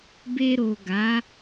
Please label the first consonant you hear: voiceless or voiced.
voiced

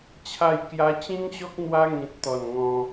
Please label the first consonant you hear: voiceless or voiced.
voiceless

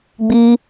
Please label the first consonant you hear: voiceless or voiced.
voiced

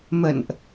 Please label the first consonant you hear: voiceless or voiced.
voiced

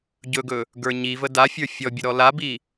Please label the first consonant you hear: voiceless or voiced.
voiced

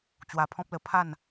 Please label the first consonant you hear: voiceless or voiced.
voiceless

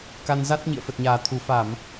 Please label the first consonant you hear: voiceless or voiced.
voiceless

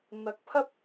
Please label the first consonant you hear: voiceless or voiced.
voiced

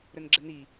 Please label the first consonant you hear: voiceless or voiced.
voiced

